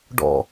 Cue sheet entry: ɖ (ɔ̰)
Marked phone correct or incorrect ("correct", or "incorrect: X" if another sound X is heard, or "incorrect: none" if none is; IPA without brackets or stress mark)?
correct